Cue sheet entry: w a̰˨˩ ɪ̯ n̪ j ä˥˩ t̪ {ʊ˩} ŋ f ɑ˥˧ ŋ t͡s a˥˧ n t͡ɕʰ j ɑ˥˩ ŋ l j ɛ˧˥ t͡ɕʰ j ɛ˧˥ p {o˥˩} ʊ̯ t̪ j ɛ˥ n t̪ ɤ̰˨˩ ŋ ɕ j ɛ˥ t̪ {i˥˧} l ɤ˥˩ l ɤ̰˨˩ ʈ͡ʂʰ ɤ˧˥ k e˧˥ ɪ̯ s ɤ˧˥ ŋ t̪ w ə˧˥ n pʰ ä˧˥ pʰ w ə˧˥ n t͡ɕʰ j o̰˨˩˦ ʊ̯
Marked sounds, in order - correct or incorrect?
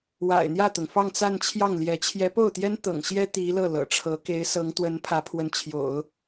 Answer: correct, correct, incorrect

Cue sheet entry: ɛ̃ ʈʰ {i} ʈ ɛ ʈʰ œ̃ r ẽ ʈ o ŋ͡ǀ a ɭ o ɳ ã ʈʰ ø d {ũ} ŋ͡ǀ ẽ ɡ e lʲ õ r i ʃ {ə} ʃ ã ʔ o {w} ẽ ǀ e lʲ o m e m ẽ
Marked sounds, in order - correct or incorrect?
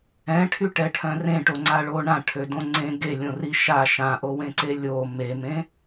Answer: incorrect, incorrect, incorrect, correct

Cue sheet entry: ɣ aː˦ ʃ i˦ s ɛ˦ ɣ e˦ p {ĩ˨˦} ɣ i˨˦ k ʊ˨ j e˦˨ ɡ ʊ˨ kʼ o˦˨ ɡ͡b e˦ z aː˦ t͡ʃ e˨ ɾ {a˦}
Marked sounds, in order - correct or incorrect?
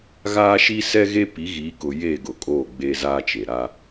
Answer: incorrect, correct

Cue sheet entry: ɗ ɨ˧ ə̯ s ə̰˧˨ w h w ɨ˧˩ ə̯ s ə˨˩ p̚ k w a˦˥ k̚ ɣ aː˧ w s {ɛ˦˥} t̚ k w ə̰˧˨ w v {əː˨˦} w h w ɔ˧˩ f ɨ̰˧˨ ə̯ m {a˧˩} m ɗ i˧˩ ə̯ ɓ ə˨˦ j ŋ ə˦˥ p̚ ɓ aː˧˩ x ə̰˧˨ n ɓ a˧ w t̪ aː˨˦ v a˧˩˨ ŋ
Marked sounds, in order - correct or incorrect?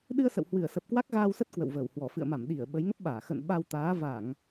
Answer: incorrect, incorrect, correct

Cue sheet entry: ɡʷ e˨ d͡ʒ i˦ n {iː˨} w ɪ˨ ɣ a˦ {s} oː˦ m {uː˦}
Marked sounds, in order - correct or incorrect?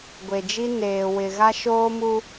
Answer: incorrect, incorrect, incorrect

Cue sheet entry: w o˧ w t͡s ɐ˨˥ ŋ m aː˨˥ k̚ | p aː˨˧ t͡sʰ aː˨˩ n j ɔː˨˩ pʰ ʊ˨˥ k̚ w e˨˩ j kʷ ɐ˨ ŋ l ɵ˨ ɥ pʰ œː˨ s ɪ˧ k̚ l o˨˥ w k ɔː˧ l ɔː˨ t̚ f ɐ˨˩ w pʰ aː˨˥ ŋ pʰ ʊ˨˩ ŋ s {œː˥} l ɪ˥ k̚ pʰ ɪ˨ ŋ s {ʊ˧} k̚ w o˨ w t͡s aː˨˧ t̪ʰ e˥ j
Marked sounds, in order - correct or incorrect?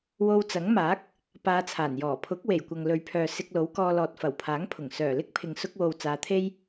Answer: incorrect, correct

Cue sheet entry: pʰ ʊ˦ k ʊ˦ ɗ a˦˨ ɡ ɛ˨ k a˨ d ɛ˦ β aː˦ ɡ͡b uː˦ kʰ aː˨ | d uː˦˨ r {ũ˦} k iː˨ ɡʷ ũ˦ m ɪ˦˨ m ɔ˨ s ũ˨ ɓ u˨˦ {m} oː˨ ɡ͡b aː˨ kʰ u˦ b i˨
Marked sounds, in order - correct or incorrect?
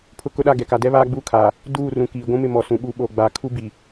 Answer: incorrect, incorrect

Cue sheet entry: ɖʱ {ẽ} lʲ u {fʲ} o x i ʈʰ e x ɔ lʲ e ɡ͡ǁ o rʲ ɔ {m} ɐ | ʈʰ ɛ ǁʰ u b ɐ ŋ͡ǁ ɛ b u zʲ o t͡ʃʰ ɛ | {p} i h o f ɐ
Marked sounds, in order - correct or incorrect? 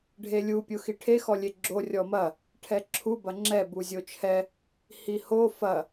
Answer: incorrect, incorrect, correct, incorrect

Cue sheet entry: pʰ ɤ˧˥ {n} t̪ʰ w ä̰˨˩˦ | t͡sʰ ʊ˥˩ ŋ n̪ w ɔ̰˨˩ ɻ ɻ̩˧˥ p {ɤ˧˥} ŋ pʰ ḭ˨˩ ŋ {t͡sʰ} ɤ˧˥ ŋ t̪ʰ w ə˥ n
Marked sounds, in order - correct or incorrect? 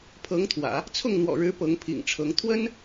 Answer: incorrect, correct, incorrect

